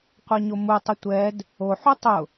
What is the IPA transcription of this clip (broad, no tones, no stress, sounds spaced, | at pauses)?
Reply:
qʷ a ɲ o m u tˤ ʊ tʷ ɛ d | o ħ u tˤ ʊ